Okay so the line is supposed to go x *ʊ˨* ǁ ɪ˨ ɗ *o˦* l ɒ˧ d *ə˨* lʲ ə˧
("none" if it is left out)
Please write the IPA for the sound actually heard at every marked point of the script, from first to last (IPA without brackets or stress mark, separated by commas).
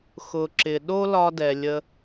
ʊ˨, o˦, ɛ˨